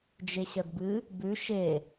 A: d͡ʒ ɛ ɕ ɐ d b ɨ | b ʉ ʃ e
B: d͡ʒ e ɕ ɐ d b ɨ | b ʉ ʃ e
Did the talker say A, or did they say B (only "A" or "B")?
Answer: B